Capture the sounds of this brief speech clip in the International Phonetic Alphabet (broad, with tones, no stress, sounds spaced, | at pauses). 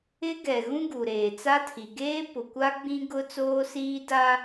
ɪ˦ ɡ ɛ˨ ɣ ũ˦ ɡ u˨ ɾ eː˨ t͡s a˦ tʰ i˨ ɡ eː˦ p ʊ˨ kʷ a˦ ɡ͡b ĩ˦ ɡ ʊ˦ t͡s oː˦ s iː˦ d a˦